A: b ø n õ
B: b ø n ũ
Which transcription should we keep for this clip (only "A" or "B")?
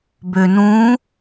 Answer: B